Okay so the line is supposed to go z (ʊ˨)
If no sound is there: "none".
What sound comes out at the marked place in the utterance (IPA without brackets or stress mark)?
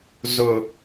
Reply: ʊ˨